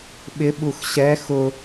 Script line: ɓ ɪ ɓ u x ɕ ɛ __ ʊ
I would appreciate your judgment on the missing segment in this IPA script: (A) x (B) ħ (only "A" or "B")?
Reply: A